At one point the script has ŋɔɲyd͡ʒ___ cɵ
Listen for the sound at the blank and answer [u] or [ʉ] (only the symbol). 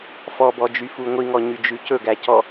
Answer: ʉ